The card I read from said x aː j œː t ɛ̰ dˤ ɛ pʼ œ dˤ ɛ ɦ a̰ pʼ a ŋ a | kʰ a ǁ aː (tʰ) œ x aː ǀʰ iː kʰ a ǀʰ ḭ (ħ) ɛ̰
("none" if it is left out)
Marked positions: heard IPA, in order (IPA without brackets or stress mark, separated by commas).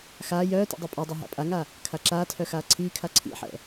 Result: tʰ, ħ